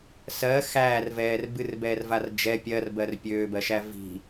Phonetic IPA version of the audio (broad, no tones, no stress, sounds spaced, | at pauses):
s ɜ x æː r v ɛː r b ɨ r b ɛː r v a r d͡ʒ ɛ pʲ ɜ r b ɜ r pʲ øː b ɜ ʃ æ v i̤